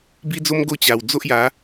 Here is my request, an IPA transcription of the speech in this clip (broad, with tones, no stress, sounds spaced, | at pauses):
b i˦ d͡z o˦ m ɡ o˥˧ t͡ɕ a˨˩ w d͡z o˦ ʔ j a˨˦